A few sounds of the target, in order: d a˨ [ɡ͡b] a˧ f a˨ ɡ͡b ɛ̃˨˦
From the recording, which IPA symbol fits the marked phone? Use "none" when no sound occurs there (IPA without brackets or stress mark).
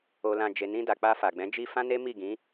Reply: k͡p